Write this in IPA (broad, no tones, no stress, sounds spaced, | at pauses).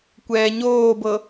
kʷ ɛː ɲ oː b ɤ